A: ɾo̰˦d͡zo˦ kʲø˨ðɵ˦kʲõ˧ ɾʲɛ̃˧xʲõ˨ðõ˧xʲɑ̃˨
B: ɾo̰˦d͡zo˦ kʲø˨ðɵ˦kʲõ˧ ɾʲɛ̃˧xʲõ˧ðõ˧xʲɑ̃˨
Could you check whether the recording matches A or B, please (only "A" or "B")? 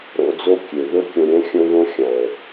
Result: B